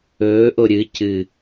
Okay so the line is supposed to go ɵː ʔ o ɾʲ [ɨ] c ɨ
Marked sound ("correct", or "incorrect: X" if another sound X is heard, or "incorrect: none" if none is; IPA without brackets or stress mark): correct